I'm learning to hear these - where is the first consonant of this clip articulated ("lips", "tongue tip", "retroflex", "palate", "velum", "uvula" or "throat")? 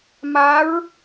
lips